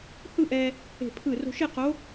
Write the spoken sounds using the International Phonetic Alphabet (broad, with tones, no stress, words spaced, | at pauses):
hɯ˥˧ʔɛ˧ | e̤˧˩pʰɯ˧˩ ro̤˧ʃe˥˧qo˧˥